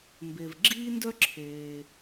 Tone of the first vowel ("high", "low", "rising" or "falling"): low